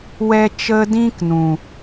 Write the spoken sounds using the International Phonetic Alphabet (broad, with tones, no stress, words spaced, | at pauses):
wɛ˦ t͡ʃə˦ dĩ˦knũ˨